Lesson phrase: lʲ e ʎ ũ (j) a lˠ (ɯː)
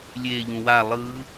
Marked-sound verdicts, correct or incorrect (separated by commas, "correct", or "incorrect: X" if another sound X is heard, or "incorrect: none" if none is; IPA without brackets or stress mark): incorrect: w, incorrect: ɯ